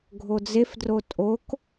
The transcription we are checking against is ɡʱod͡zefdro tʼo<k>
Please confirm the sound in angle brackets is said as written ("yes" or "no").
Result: yes